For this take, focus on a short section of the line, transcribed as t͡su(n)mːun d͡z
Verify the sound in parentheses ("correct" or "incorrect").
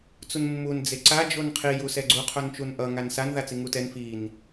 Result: correct